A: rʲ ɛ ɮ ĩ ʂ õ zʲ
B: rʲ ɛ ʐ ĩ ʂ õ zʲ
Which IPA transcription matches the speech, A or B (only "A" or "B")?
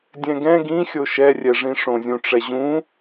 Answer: B